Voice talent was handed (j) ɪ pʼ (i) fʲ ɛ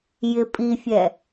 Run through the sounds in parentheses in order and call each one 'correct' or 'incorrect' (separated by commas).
correct, correct